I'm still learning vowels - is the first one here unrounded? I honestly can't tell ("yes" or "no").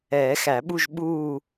yes